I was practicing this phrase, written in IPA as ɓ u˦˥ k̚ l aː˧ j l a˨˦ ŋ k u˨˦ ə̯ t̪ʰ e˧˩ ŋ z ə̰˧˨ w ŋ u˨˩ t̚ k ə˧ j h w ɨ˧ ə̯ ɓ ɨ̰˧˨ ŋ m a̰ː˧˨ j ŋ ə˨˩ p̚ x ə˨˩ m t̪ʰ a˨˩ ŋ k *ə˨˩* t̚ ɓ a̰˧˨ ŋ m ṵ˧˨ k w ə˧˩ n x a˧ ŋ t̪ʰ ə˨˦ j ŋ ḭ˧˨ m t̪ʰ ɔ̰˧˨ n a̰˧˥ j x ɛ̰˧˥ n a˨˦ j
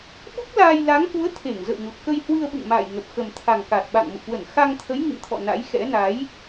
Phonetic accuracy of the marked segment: incorrect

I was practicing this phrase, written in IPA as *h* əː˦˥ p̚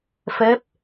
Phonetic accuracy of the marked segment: incorrect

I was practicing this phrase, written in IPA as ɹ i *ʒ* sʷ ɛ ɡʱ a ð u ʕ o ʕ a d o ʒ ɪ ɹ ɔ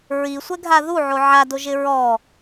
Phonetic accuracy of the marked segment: incorrect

